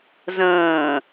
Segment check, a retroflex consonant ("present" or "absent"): absent